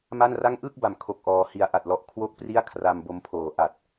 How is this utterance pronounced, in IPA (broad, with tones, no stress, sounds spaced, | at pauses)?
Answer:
m a˥˩ n r a˥˩ ŋ ʔ ɯ˥˩ k̚ b a˨˩ m kʰ o˦˥ k̚ ʔ ɔː˧ h i˦˥ a̯ ʔ a˨˩ t̚ l ɔ˨˩ ʔ kʰ w o˥˩ k̚ p r i˥˩ a̯ kʰ r a˧ m b o˦˥ m pʰ oː˨˩ ʔ a˨˩ t̚